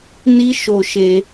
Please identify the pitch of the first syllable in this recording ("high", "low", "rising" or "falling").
high